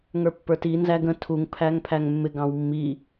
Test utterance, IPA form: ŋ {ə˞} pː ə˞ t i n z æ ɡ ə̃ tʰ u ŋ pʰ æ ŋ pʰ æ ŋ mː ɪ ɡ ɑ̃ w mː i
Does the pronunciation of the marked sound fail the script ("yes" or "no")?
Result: no